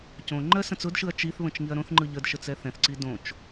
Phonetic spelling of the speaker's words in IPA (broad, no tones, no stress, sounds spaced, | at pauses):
c õ ŋ͡ǃ ɜ s ə̃ t͡s ʊ d ʃ ɯ ɐ̯ t͡ʃ i θ β ə̃ t͡ʃ ŋ i ɐ̯ ɾ õ θ ŋ͡ǃ ɯ ʎ ə d ʃ ə t͡s ɛ θ ɛ̃ θ ǀ i d õ t͡ʃ